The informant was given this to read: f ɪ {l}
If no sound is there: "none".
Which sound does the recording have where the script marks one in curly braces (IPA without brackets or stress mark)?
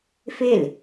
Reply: l